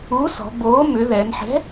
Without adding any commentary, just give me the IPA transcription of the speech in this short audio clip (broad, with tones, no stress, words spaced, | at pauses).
u˨˥sɔ̤˩˧boː˨˥ mʏ˩˧ ðɛ˩˧n ħɛ̤˨˥